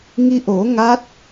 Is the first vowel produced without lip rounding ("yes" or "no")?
yes